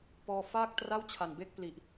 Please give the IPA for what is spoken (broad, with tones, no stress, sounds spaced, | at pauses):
p ɔː˧ f aː˥˩ k̚ t r a˥˩ w t͡ɕʰ a˨˩ n b e˥˩ k̚ p l i˨˩ ʔ